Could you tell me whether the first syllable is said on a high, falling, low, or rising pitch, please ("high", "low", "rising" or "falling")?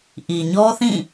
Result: low